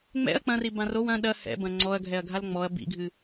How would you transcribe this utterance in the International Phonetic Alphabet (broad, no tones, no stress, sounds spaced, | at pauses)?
ŋ͡m ɛ̰ ɐ̯ k͡p ɐ̃ r i b ã r o w ɐ̃ ɗ ɐ h ɛ̰ b ɐ̃ ŋ͡ǀ ɔ ɐ̯ ɡʱ ɛ ɐ̯ ɡʱ a l ŋ͡m ɔ ɐ̯ b ḭ ɡʱ ɨ